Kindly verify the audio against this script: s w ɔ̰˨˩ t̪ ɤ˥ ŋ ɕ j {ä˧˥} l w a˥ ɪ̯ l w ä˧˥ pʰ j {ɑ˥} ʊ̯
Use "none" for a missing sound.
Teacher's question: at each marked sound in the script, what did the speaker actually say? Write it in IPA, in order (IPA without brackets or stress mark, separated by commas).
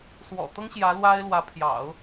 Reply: ä˧˥, ɑ̰˨˩˦